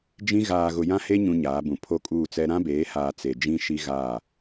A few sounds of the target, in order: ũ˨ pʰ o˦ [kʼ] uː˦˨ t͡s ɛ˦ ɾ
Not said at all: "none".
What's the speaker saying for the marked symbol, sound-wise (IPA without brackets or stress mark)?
kʼ